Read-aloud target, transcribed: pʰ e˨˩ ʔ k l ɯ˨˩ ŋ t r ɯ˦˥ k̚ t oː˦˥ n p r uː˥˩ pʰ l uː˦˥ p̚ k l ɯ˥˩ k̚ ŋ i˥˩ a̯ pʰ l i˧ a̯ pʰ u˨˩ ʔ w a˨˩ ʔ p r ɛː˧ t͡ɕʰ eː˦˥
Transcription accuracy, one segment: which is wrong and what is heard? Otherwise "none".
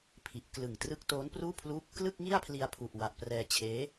e˨˩ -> i˨˩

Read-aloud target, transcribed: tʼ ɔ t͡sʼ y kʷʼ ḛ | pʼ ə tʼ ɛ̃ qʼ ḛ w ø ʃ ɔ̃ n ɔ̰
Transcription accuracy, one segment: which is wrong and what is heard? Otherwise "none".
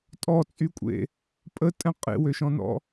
none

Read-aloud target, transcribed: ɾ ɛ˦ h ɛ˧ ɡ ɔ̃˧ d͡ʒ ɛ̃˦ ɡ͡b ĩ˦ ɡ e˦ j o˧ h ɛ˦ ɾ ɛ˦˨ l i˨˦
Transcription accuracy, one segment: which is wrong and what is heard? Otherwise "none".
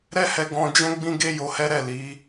none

